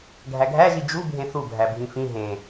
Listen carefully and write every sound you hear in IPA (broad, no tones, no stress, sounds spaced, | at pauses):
ɡʱ æ ɡʱ æ ʒ i d͡ʒ u bʱ ẽ θ u bʱ æ bʱ ĩ f ĩ ɦ ẽ